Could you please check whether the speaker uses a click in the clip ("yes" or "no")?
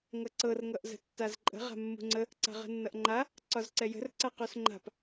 yes